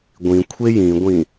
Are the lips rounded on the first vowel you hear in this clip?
no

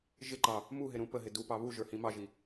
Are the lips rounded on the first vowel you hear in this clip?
no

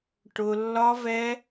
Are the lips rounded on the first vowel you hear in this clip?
yes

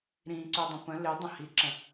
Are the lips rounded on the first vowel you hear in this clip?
no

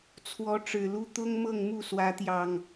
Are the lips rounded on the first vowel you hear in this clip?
yes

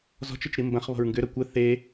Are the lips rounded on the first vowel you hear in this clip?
yes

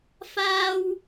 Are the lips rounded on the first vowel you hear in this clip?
no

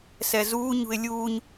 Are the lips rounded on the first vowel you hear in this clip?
no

